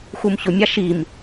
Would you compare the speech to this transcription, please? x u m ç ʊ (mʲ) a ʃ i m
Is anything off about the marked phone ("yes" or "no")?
no